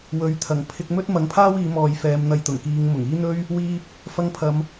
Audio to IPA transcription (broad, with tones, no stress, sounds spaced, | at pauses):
w ɵ˨˥ ɥ t̪ʰ ɐ˨˩ ŋ pʰ ɪ˧ k̚ m ɵ˥ t̚ m ɐ˨˥ ŋ pʰ aː˥ w iː˨˧ m ɔː˨ j f ɛː˨˧ m n̪ ɐ˨ j t̪ ʊ˨˩ ŋ k iː˨˧ ŋ m ʊ˨˩ ŋ iː˥ n̪ ɵ˥ ɥ | w iː˧ p̚ | f ɐ˧ ŋ pʰ ɐ˨˧ m